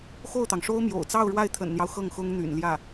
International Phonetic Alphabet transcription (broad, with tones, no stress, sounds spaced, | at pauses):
x o˥˩ ʊ̯ t̪ ɑ˩ ŋ ʂ o˥ ʊ̯ m j o̰˨˩ ʊ̯ t͡s ɑ˥˧ ʊ̯ ɻ w a˥˩ ɪ̯ t̪ʰ ə̰˨˩ n n̪ j ɑ˦ ʊ̯ x ɤ˥˩ ŋ x ʊ˥ ŋ n̪ y̰˨˩ n l j ä˥˩